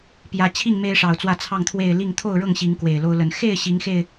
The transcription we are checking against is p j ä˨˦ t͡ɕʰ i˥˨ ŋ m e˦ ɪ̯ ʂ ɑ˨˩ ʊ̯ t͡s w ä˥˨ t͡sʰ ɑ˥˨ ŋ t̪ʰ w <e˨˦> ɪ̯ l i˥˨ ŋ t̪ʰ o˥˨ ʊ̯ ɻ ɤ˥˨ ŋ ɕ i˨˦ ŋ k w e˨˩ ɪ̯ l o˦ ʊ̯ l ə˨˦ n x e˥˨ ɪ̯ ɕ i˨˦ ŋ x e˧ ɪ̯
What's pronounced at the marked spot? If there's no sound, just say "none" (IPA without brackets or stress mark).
e˥˨